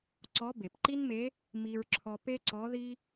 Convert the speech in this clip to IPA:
ǀɔ˧˥ be˩pǃi˥nme˧˥ | mi˧ɹǁʰɔ˧ pe˥ǀɔ˧˥ði˥

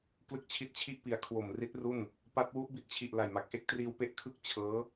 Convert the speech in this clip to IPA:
klɯ˦˥k̚t͡ɕʰi˦˥t̚t͡ɕʰi˥˩ʔpi˨˩a̯ kʰwo˨˩mri˦˥t̚ ru˥˩n | pa˦˥t̚ wu˦˥ʔbi˦˥t̚t͡ɕʰi˨˩ʔ la˨˩jma˨˩k̚ ʔe˥˩k̚triː˧wpe˦˥ʔ kʰɯ˥˩k̚ t͡ɕʰɤː˦˥

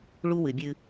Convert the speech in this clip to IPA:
ɭu˦wɨ˨bʲɨ˦

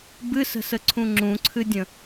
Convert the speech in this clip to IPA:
bɨsə̤səǀʰũ ŋ͡ǁũǀʰɨdʲə̃

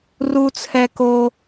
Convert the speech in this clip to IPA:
ru˥t͡sʰɛ˥ko˥

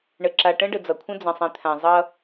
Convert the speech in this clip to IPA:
ɳə˨ǁa˨ ʈə̃˦ɖə˨ d͡zʌ˨kʷʰə̃˦ d͡zə̃˨ sˤĩ˨t̪ʰã˨ zˤʌ˦

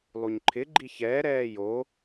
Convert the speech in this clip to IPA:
lˠuɲǃʰɪ ɡ͡ǃiçɛː ɾɛːjo

